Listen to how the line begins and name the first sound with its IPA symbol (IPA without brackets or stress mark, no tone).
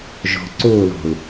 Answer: ʒ